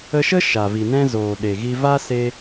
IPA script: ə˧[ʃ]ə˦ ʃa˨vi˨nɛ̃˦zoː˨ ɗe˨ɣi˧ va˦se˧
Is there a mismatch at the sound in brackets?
no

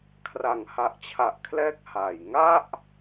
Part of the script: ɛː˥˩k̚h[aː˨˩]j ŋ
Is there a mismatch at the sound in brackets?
no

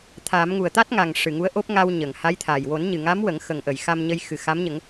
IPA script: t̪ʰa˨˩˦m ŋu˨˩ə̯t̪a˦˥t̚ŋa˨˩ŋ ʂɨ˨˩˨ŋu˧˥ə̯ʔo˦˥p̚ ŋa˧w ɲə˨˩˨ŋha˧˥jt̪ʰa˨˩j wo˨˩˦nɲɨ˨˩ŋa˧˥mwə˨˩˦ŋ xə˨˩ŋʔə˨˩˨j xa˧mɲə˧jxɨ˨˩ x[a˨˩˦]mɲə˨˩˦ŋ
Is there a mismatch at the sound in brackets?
yes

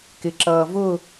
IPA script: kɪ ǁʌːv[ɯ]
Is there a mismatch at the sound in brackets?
yes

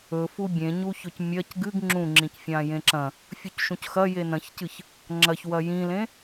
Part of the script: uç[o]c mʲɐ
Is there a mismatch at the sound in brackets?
yes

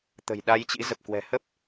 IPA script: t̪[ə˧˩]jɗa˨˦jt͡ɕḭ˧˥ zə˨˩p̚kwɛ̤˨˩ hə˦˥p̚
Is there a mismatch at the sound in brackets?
yes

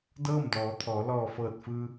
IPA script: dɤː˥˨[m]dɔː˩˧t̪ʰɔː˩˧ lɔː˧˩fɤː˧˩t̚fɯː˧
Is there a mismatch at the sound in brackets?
no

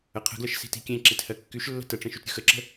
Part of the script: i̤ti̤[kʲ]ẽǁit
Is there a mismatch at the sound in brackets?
no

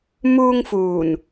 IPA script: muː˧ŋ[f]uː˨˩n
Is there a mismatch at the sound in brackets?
no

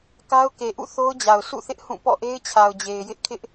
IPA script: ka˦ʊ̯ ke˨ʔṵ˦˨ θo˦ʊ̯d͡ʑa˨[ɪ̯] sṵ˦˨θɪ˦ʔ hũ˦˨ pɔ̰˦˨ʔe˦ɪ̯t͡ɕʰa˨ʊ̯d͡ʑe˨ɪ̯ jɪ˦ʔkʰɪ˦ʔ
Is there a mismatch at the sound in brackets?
yes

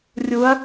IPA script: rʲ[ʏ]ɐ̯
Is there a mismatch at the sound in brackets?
yes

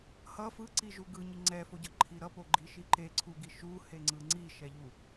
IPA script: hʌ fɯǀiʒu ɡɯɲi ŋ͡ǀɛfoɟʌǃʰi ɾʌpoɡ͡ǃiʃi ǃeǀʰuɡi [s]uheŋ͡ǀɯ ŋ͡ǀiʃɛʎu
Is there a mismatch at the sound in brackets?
yes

